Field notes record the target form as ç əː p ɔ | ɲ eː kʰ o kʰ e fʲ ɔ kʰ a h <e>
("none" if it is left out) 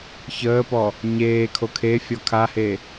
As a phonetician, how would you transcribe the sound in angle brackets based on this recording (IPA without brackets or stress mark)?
e